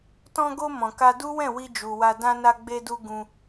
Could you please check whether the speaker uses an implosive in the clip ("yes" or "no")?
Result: no